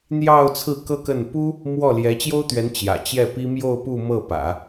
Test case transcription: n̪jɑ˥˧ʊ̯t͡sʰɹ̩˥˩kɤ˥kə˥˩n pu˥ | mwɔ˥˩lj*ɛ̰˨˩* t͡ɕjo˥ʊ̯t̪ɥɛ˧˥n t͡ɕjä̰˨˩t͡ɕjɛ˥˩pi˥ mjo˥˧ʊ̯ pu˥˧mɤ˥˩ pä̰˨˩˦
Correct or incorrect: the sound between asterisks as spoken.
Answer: incorrect: ɛ˧˥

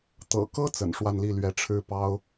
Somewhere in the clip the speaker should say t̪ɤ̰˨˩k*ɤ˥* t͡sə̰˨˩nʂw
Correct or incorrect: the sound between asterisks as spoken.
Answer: correct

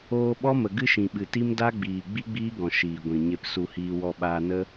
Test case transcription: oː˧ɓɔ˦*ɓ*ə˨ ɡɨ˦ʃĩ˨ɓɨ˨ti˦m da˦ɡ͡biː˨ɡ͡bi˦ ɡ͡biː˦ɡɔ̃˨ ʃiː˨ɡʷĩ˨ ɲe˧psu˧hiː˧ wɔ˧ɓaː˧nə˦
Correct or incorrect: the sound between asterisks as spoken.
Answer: incorrect: m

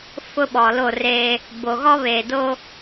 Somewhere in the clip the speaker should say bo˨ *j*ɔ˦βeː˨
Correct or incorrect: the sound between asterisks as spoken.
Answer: incorrect: ɣ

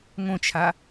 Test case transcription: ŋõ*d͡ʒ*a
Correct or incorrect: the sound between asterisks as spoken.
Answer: incorrect: t͡ʃʰ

